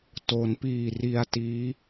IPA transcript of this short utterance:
t o˩˦ n p iː˨˩ r i˧ a̯ t iː˦˥

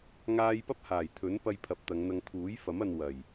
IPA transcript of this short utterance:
ŋ aː˧ j p ɐ˥ p̚ h aː˨˩ j t̪ʰ ɵ˨˥ n p ɐ˧ j pʰ ɐ˨˥ p̚ t̪ ɐ˨˧ ŋ n̪ ɐ˧ ŋ t̪ʰ uː˨˥ j f ɐ˨˥ m ɐ˧ n w ɐ˨˩ j

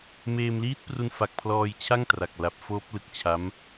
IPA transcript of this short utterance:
m eː˧ m l iː˦˥ t̚ p r u˧ n f a˨˩ k̚ pʰ l ɔː˧ j t͡ɕʰ a˥˩ ŋ t r a˨˩ k̚ l a˨˩ p̚ f oː˦˥ p̚ l ɯ˨˩ k̚ t͡ɕʰ a˦˥ m

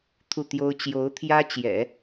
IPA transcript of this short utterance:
t̪ʰ u˥˩ t̪ j o˥ ʊ̯ t͡ɕ j o˧˥ ʊ̯ t̪ʰ j ä˥ t͡ɕ j ɛ̰˨˩˦

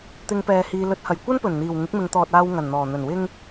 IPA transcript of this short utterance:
t̪ ɪ˨˧ ŋ p ɛː˨ h iː˨ l ɵ˨˥ t̚ h ɐ˨˩ j kʷ ɐ˥ n p ɵ˨˩ n n̪ iː˨˩ w ŋ ɪ˨˥ k̚ m ɪ˨˧ ŋ t̪ ɔː˨ t̚ aː˨ w ŋ ɐ˨˩ n n̪ ɔː˨˩ n̪ ɵ˨˩ n w ɪ˧ ŋ

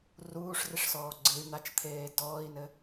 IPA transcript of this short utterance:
r uː ʂ r i ʂ s ɔː ɡ͡ǀ ɨ y̯ n̪ a t͡ʃ t̪ʰ eː d ɔː i̯ n ɘ

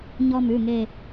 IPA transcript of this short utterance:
ɲ ɔ˦ m ʉ˩˧˩ ŋ e˦˨

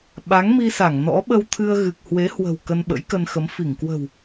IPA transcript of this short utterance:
ɓ a˨˦ ŋ m i˧ s a˧˩ ŋ n ɔ̰˧˥ ɓ ə˧ w t̪ʰ ɨ˧ ə̯ ɣ ɨ˨˩ k̚ h w e˨˦ h w ə̤˨˩ w k ə˧ n ɓ ə̰˧˥ j k ə˧ n x ə˨˦ m f i˧˩ ŋ k w ə̤˨˩ w

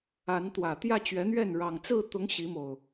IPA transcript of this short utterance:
a˨˦ n t̪ w ä˨˩ t̪ j ä˥˨ t͡ɕ ɥ ɛ˨˦ n̪ ɥ ɛ˥˨ n ɻ ɑ˨˩ ŋ t͡s ɹ̩˥˨ t̪ ʊ˨˦ ŋ ɕ i˨˦ m o˨˩ ʊ̯

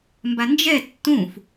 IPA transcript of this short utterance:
m b a n d͡ʒ ɛ tː ũ f

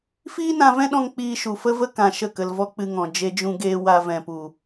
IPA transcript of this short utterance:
f iː˦ n ã˧ v ɛ̃˦ ɗ ɔ̃˧ ŋ k͡p iː˧ ʃ u˨ f ə˦ v ə˦ k ã˧ ʃ ə˦˨ k ə˧ l v ɔ˦ k͡p ɨ˧ ŋ ɔ̃˨ d͡ʒ e˦ d͡ʒ ũ˦ ɡ eː˦ w a˧ v ɛ̃˨ p u˨

